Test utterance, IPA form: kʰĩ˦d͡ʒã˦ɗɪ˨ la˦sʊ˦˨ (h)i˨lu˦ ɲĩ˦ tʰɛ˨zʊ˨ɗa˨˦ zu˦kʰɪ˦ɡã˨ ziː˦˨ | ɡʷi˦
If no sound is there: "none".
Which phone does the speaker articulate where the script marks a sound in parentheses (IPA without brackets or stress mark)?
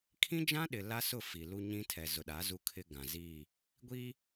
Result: f